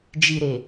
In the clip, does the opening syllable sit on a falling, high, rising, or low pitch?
low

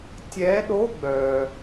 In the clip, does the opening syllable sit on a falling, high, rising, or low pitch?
rising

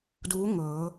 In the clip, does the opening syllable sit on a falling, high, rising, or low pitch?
rising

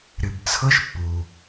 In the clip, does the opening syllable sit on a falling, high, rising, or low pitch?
low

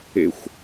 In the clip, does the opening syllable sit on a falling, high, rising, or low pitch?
low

